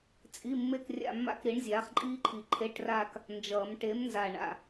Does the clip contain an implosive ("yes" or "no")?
no